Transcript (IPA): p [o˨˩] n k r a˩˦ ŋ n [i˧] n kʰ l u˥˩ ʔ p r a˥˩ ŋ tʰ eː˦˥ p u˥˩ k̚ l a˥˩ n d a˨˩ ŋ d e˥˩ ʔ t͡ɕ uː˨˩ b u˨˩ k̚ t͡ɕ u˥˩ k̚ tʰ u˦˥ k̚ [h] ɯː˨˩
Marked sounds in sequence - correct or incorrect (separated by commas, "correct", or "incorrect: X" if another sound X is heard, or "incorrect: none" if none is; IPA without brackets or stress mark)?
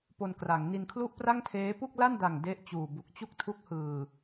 incorrect: o˧, correct, correct